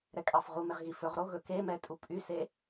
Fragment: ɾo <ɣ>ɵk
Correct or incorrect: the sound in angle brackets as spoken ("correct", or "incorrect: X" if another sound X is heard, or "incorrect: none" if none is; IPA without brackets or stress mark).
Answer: correct